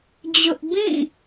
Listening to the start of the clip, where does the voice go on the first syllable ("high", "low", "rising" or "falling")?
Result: high